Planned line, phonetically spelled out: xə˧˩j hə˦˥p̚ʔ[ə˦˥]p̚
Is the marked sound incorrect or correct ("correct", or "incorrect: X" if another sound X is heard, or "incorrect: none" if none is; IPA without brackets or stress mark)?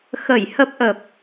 incorrect: ə˨˩